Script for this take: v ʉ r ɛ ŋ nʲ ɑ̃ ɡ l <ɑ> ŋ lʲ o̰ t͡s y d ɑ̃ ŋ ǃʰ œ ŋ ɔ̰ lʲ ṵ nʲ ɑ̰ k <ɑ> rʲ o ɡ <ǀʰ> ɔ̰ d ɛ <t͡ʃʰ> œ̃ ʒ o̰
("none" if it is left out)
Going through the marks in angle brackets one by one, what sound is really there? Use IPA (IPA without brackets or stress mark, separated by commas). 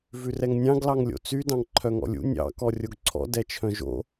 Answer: ɑ, ɔ, ǀʰ, t͡ʃʰ